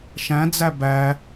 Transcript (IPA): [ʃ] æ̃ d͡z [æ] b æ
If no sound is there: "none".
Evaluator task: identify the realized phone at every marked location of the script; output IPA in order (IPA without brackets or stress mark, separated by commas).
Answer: ʃ, æ